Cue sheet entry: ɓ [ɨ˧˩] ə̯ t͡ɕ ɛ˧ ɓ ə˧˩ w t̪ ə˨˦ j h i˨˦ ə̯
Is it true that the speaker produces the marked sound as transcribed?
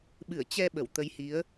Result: yes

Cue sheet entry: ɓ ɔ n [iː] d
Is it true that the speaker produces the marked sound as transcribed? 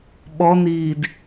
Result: yes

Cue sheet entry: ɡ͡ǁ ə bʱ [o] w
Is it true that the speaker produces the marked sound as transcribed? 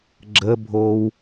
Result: yes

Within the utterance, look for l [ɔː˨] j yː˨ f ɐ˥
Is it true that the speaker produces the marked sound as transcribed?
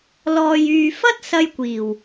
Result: yes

